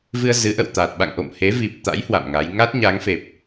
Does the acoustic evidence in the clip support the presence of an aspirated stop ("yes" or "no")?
no